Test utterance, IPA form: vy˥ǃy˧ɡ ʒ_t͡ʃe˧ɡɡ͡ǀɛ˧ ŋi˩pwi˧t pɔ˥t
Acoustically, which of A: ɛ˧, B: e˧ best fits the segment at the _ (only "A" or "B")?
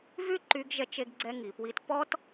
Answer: A